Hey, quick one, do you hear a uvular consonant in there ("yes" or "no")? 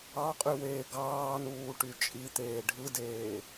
yes